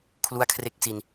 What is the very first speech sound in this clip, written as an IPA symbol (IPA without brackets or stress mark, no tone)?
kʰ